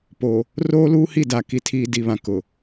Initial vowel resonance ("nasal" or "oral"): oral